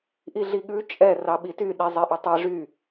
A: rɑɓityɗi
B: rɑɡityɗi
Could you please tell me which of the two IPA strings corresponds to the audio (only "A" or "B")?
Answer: A